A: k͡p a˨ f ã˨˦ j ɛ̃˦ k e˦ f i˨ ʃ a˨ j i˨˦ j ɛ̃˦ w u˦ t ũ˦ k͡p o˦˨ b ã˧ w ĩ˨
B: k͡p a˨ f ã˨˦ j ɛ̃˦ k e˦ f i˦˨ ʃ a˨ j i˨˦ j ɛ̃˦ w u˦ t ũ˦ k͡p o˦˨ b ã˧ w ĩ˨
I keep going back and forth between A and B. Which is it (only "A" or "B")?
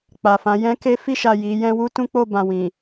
B